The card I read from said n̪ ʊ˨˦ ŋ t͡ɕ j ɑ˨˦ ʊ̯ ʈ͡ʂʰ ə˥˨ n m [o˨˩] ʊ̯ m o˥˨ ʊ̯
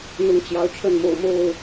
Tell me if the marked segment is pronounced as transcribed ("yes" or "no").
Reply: no